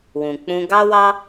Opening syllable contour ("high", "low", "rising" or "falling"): low